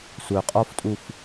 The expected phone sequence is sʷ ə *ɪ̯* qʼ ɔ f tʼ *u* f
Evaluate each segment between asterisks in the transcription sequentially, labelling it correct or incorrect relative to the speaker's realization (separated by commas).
incorrect, correct